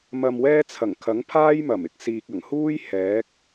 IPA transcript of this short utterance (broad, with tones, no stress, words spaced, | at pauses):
mɐ˧mwɛː˥ t͡sʰɐ˨˩ŋkʰɐ˨˥ŋpʰaː˥j mɐ˨˩mɪ˥k̚siː˨k̚ ɐ˨˩ŋhuː˥j hɛː˨˥k̚